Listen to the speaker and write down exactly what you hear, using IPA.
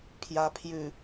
pʰ j a pʰ j ʉ

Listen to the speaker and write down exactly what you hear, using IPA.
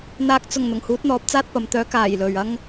n̪ aː˨ k̚ t͡s ʊ˨˩ ŋ n̪ ʊ˨˩ ŋ h uː˨˥ t̚ n̪ ɔː˨˥ p̚ t͡s aː˧ t̚ p ɐ˨ m t̪ œː˨˥ k aː˨˩ j l ɵ˨ ɥ ɐ˥ ŋ

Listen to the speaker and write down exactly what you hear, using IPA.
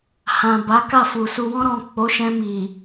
h ã˨ b a˨˦ k a˦˨ f u˨ s u˨ w ɔ̃˧ ɾ ɔ̃˨ k͡p o˨˦ ʃ ɛ̃˧ m i˨

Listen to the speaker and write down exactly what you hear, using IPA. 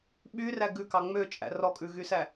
ɓ y r æ ɡ ʉ k ɑ ŋ͡m ø t͡ʃʼ æ̰ r ɔ kʼ ʉ ɣ y s æ

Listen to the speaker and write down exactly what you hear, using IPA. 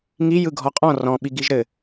ŋ i j ɯ ɡʱ ɔ qʼ ɔ̃ r ɔ̃ ɓ i ɡ i ʒ ɾ ɘ

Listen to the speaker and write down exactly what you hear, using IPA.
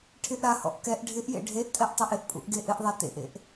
ʈʰ ɪ ʔ ɾ a h ɔ̰ ʔ k ɛ ʔ ɖʱ ɪ ʔ j ḛ ɖʱ e ʔ tʼ ɛ ʔ tˤ a ʔ ɪ ʔ pʼ ṵ ʔ ɡ e ʔ ɪ ʔ ðˤ a t ḛ ʔ ḛ ʔ

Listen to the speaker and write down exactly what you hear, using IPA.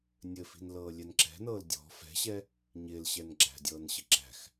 nʲ ɘ f i̤ n l ɤː lʲ ɛ n ǁ ɛ̤ n ɤː l dʲ ɔ̤ f ɛ̤ ɕ ɛ | ɲ ɪː l ɕ ɛ n ɡ͡ǁ æ̤ dʲ ɤː n ɕ ɘ ǁ æ̤ x

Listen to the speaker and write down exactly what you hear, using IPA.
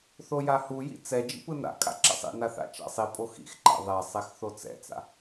θ o j a h u j ḭ t͡s ɛ d͡ʒ ḭ p ɯ n a̰ kʼ a̰ ǁ ɛ̰ sˤ ḭ n a θ a̰ t͡ʃ a̰ sˤ i pʼ o x ḭ x ǃ a̰ ðˤ ɛ sˤ ɛ x θ o t͡s ɛ̰ t͡s a̰

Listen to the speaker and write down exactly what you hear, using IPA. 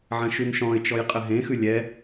ʕ ɐ̃ ʃ ʉ n ʃ ɔ̃ ɪ̯ t͡ʃ ɔ j qʼ ɘ ɦ ẽ x ʉ lʲ ɛ

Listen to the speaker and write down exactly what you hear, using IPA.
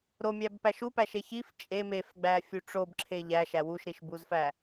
ɾ o mʲ æ b p æ ʃ u p æ ʃ e ç i f t͡ʃʼ e m e f ɡ͡b æ fʲ u ʈ͡ʂ o b ǁʰ e ʎ æ ʃ æ w u ʃ ɾ i ʃ b u z f æ

